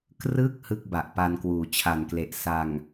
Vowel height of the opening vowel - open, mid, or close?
close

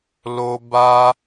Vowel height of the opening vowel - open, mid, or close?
mid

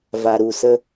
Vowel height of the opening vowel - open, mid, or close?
open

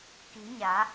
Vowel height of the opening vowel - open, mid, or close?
close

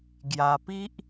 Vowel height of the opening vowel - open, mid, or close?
open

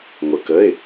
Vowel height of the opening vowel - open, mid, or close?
mid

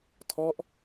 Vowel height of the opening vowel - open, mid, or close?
mid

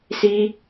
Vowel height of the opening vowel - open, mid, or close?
close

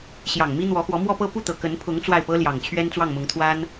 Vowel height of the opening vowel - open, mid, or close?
open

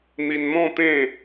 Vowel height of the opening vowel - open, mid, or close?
close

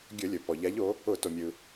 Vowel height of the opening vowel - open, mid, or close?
mid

